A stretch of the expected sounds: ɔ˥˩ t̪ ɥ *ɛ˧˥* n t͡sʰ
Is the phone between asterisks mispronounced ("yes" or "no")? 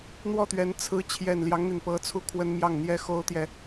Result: no